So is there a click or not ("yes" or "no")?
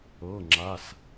yes